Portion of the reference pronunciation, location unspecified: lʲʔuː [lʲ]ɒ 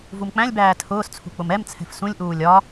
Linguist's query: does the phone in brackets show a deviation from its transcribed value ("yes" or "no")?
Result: no